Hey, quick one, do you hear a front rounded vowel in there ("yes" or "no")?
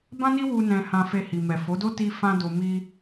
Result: no